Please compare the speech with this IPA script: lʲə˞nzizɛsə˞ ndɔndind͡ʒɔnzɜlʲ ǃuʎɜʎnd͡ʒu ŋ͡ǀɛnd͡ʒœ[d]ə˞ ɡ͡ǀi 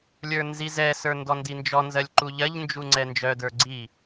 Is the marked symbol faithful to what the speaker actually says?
yes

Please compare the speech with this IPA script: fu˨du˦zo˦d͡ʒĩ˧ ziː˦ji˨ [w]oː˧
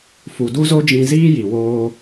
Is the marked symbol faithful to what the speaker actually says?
yes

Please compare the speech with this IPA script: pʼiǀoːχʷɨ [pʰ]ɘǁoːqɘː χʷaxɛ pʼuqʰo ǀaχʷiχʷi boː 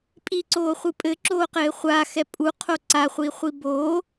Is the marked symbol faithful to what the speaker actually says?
no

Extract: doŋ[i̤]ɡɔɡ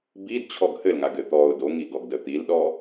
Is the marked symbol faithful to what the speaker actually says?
no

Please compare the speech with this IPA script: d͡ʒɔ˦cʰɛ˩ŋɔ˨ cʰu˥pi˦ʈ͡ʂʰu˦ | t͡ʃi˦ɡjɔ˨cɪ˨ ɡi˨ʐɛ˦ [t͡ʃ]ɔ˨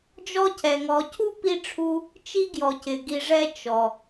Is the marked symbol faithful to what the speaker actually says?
yes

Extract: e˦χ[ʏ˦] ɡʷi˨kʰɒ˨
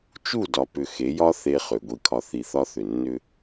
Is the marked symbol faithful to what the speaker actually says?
no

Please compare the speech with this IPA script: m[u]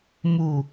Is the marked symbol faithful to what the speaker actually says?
yes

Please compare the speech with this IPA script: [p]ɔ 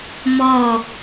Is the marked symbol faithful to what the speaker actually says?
no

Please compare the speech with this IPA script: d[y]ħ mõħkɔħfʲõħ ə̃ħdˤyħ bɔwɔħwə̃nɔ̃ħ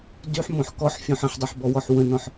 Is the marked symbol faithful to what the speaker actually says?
yes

